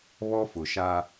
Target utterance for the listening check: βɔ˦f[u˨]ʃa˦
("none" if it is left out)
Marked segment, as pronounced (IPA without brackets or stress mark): ʊ˨